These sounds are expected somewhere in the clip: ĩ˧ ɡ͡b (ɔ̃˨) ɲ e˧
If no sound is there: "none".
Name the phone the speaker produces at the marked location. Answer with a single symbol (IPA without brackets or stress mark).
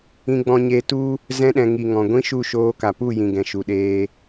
ɔ̃˧